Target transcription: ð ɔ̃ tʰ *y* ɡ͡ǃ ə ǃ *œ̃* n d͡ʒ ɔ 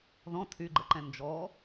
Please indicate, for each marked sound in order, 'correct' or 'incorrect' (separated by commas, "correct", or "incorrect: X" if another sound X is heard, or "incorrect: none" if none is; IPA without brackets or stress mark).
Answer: correct, incorrect: ɛ̃